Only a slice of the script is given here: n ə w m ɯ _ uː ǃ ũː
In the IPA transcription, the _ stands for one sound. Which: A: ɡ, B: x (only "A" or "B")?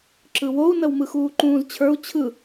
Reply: B